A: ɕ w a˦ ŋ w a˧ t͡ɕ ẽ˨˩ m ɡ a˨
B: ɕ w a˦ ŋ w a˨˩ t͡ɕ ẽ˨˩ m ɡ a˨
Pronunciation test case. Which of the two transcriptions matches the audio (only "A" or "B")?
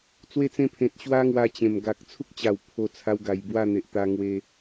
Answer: A